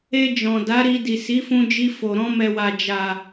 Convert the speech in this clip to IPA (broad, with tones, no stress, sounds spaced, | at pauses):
e˧ d͡ʒ ɔ̃˨ d a˨˦ ɾ i˧ d i˨ s i˨˦ f ũ˧ d͡ʒ i˧ f o˨ ɾ ɔ̃˧ m ɛ˨ w a˨ d͡ʒ a˨